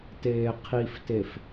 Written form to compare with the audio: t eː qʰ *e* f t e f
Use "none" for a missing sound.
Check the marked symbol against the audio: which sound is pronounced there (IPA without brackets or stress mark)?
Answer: i